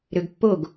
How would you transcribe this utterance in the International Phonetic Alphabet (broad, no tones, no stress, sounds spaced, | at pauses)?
ɾ ø ɡ pː o ɡ